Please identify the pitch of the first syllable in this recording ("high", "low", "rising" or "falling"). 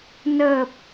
low